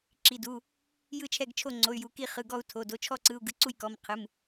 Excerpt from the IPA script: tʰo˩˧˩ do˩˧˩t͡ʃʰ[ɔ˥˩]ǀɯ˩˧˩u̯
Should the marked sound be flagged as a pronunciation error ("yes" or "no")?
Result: no